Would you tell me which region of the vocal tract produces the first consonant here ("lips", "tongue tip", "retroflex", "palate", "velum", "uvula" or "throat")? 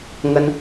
velum